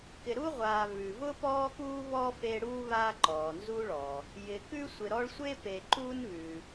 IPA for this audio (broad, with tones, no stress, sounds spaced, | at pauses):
k ɪ˨ ɾ u˦ ʁʷ aː˨ β ʉ˩ v ʊ˥ p ɔː˦ k uː˦ β ɔː˥ f e˦ ɽ uː˥ β aː˦ ǃ ɔː˩ n z uː˦ ɭ ɔː˩ | j ɪ˨ k ʉ˥ sʷ ɪ˨ ɾ ɔ˦ ɭ sʷ e˥ p e˨ ǃ uː˦ n β ʉ˩